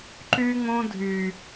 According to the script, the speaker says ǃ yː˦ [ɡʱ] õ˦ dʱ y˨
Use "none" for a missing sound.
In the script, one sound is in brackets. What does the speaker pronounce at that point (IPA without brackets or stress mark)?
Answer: ŋ